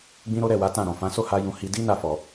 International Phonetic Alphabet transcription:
ɡ͡b ĩ˦ ɾ o˦ ɾ ɛ˦˨ w a˨˦ t ã˦˨ ɾ ɔ̃˨ f ã˨˦ s o˦˨ h a˧ j ũ˨ h i˧ d i˦ n a˦˨ f ɔ˨

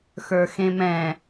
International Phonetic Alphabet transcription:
x ə˞ x ẽ m ɛ̃

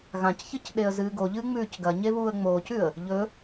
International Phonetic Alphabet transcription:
ɣ ã c ç ɨ c ɗ e ə̯ z ɨː ɡ o ʎ ɨː ŋ͡m ʉː c ɡ ɐ ɲ e β uː ə̯ ŋ͡m oː c ʉ ə̯ | ʎ ɵ

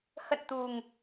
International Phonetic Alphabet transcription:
h ə̰˧˨ n t̪ u˨˩ ŋ

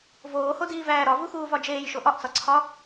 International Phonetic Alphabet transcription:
v oː h o d iː v æː ɾ ɒ v u x uː v ɒ d͡ʒ eː j ʃ o ʔ ɒ ʔ t͡s ɒ ǀʰ ɒ

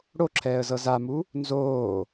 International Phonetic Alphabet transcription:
ɽ o ǁʰ ɛː ə̯ z ɤ z a m u | n z oː

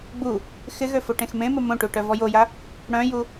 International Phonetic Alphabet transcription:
ɡ͡b u | x ɪ ɣ ø f o ʈ ẽ x m ẽ m ə m õ ʈ u ʈ œ v ɔ j o j a | ɽ œ̃ j u

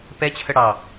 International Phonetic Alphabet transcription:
p ɛ t͡ɕʰ ə ɽ ɑ

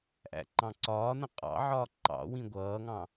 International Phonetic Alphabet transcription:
ʔ æ̰ ǃ ɑ̃ ǀ ɒː n ə̃ qʼ ɑ̰ ʕ ɒː ǃ ɑ̰ w ĩ ɡʷ ʌː ŋ ɑ̃

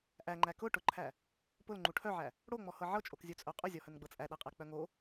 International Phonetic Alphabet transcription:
ʔ æ ŋ͡ǃ æ k ʊ ʈ ʊ ǃʰ æ | p ʊ l ŋ͡ǃ u ʈʰ œ ʕ æ | ɽ o ŋ͡m ɔ h ɤ ʕ ɤ t͡ʃʼ o k zʲ u t͡sʼ œ qʼ ʊ zʲ ɔ h œ n ɡ͡b ɤ t͡sʼ æ ɗ æ qʼ æ k͡p œ ŋ o

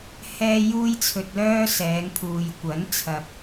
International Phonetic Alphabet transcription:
h ɛː˧ j uː˥ j t͡sʰ ɵ˧ t̚ l œː˥ s ɛː˨˧ ŋ pʰ uː˨ j kʷ ɐ˨˥ n t͡sʰ ɐ˨ p̚

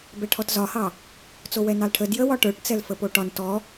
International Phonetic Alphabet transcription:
b ɛ ʈʰ ɔ t z ɒ h ɑ | t͡s o w ɛ n ɑ l ʈʰ ə d j ə w ɒ ʈ ə˞ ʈ t͡s ɛ l f ə p o ʈ ɒ n t ɔ

